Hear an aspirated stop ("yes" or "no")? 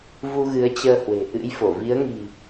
no